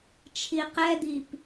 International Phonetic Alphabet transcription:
t͡ʃʰ i q ɛ d̪ i p

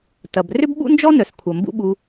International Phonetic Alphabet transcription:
t ɐ˨ b r ʏ˦ b ɓ ṵ˦ n d͡ʒ ɔ˦ n œ˨ s kʷʰ ɐ˨ m b ṵ˦ ɓ u˧

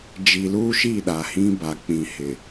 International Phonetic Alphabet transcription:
d͡ʒ i˨ l uː˦ ʃ i˦˨ ɗ a˨ h ĩ˦ b a˨ k͡p ĩ˨ h ɪ˨

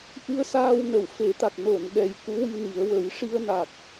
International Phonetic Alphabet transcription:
ʔ ɨ˧ ə̯ s aː˧ w n ə˨˩˨ w f e˨˩˦ t̪ a˨˩ k̚ n o˨˩˨ n ɗ ɛ˨˩ j k u˧˥ w i˧ n i˨˩˦ ə̯ w ə˨˩˦ j ʂ i˧ ə̯ n a˨˩ k̚

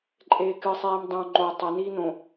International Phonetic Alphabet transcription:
ǃʼ eː k ɨ sˤ eː m dˤ õ ŋ͡ǃ o tˤ ɐ n iː n õ

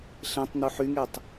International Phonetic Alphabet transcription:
ɬ ẽ tˤ n̪ u ħ y ŋ e tˤ

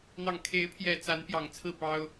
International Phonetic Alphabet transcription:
n̪ ɑ˨˩ ŋ kʰ e˨˦ ɪ̯ pʰ j ɛ˨˩ t͡s a˨˦ n p j ɑ˨˩ ŋ t͡sʰ ɹ̩˥˨ p ɑ˦ ʊ̯

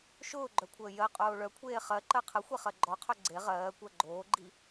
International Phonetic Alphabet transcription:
ʃ ʊː ɡ͡ǃ œ kʷʰ əː j ɜ qʼ oː ɭ œ kʷʰ eː χ ɜ ǃ ɜ qʰ ə xʷ e χ ɜ ɡ͡ǃ ɔ qʰ œ ɡ͡ǀ e ʁ ɜː kʷ ɜ ɡ͡ǃ oː ɡ͡ǃ i

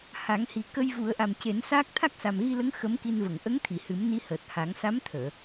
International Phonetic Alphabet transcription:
h a˨˩˦ ŋ h i˨˩ k ə˧ j v u˨˩˦ ə̯ ʔ a˨˩ m c e˨˩˦ n s aː˦˥ k̚ t̪ʰ a˦˥ k̚ s a˨˩ m ɣ i˧ l ə˧˥ ŋ x ə˧˥ m k i˧ n v ə˨˩˨ ŋ ʔ ə˧˥ ŋ t̪ʰ i˨˩˨ h ɨ˨˩˦ m n i˧˥ h əː˨˩ t̚ h a˨˩˦ ŋ s a˧˥ m t̪ʰ əː˨˩˨

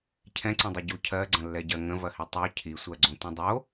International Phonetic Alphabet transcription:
cʰ ɛ̃ ǀ ə̃ dˤ i ɟ u cʰ ɜ ɡ͡ǀ ɐ̃ lː ɛ ɟ ɜ ŋ ə̃ v ɐ h i tˤ œ cʰ i sʷ ɜ ɡ͡ǀ õ tʷ ɐ̃ dˤ o

